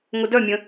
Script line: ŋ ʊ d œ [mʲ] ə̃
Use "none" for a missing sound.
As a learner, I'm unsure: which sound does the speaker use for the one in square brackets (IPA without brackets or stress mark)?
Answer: mʲ